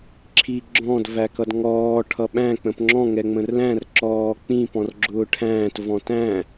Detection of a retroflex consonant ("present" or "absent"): present